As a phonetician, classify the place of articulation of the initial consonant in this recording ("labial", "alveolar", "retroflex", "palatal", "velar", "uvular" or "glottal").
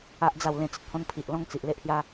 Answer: glottal